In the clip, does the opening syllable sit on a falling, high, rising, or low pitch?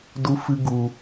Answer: high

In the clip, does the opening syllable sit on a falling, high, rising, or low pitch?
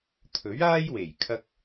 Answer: rising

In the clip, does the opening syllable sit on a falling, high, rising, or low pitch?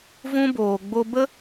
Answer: high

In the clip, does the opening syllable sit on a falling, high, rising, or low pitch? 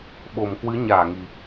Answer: low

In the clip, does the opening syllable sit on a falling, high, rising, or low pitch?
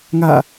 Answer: falling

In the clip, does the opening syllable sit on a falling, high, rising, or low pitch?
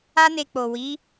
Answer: high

